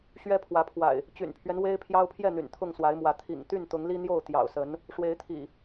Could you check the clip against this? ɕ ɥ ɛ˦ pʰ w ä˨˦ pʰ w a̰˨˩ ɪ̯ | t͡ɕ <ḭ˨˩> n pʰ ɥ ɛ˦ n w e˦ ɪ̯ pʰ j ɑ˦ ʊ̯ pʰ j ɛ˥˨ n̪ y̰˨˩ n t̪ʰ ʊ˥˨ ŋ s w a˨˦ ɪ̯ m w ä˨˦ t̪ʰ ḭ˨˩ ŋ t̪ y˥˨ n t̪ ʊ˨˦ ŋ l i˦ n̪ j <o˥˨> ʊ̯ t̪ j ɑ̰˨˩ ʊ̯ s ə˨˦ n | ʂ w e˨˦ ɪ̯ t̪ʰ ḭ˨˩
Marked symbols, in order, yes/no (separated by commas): no, yes